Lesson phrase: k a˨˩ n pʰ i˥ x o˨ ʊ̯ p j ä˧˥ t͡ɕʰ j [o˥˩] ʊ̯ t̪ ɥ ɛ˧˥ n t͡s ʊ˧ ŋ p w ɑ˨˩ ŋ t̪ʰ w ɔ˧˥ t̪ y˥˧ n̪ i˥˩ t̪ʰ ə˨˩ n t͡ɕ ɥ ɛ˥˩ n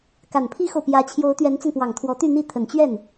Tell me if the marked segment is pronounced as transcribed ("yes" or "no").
no